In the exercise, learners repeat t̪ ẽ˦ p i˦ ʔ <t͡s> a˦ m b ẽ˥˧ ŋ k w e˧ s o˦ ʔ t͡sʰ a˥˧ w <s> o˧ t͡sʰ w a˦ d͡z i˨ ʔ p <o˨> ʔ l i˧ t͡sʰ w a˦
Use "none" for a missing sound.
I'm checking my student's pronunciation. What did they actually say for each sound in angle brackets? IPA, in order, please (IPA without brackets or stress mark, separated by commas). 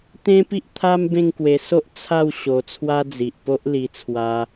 t̪ʰ, ɕ, o˦